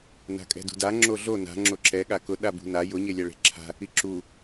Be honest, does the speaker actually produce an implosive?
yes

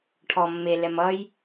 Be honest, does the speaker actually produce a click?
no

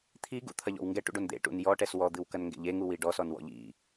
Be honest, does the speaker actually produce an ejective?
no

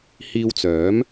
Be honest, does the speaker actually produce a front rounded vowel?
yes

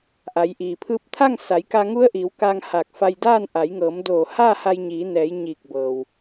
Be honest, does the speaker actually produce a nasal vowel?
no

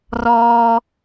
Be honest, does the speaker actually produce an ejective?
no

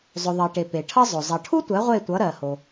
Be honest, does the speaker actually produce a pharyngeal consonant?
no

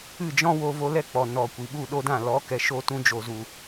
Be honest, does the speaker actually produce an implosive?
yes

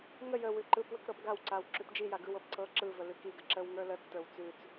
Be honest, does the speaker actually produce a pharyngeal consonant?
no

